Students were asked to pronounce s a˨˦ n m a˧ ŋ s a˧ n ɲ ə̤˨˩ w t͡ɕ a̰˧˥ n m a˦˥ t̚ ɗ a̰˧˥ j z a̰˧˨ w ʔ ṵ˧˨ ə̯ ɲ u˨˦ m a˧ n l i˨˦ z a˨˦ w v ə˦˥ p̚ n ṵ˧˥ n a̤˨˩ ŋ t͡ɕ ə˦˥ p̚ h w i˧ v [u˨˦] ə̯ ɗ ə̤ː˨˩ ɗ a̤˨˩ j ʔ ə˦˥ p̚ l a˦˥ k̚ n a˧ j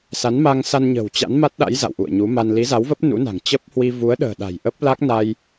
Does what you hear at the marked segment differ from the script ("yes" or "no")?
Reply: no